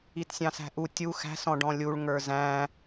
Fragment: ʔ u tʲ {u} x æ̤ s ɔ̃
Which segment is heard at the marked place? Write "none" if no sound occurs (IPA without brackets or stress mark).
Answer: u